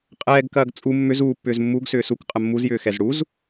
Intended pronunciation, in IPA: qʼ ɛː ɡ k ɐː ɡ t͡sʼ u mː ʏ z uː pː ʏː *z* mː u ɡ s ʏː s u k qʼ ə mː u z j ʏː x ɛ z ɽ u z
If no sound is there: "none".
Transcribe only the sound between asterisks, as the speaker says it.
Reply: z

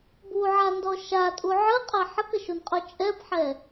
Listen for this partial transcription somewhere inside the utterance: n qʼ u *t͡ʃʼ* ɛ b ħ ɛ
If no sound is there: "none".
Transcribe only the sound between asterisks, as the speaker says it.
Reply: t͡ʃʼ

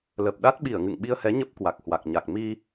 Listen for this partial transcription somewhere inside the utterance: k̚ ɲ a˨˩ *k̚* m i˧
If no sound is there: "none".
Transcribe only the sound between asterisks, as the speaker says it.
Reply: k̚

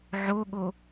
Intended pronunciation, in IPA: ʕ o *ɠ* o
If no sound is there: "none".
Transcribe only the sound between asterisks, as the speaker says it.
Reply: ɠ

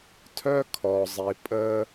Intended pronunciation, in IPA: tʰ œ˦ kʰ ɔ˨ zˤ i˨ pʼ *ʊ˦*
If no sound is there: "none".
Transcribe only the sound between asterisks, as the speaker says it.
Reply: ə˦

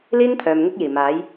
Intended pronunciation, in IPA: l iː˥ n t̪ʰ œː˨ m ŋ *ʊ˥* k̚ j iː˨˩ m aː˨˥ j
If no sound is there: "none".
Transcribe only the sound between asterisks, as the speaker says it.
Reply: ʊ˥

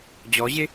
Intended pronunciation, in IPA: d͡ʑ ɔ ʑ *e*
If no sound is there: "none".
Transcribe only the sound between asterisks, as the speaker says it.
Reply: e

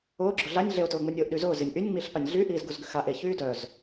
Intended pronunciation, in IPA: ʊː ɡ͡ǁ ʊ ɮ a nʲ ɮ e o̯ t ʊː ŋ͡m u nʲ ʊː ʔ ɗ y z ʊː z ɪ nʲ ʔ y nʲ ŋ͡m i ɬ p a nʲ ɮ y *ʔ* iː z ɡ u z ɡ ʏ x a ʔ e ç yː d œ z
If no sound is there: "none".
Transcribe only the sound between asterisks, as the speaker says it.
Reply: ʔ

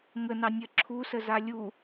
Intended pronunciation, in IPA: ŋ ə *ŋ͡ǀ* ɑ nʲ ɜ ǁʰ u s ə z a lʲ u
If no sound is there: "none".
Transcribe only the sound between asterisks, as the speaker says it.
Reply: n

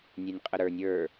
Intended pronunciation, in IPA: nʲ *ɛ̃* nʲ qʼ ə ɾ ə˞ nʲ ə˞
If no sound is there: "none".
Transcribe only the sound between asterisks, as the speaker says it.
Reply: ɛ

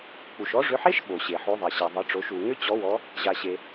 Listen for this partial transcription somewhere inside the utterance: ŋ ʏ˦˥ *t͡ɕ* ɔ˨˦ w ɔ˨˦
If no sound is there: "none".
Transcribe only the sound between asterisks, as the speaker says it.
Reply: t͡ɕ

